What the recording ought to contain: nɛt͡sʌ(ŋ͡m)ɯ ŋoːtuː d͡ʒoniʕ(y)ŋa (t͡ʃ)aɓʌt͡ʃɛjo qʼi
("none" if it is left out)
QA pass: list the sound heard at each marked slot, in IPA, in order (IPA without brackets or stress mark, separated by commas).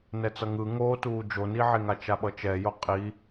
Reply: ŋ, e, t͡ʃ